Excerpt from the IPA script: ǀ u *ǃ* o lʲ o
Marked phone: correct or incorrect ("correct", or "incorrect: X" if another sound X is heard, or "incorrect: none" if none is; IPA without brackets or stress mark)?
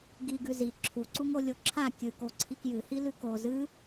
incorrect: ŋ